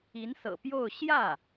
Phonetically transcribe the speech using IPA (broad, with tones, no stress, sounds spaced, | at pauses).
i˧˥ n s ɤ̰˨˩ p j o˥˧ ʊ̯ ɕ j ä˥˩